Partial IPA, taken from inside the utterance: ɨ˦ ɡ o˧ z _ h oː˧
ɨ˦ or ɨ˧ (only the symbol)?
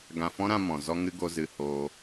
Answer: ɨ˧